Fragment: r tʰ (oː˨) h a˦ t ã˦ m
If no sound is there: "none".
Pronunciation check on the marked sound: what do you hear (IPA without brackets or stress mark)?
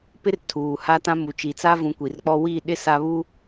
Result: uː˨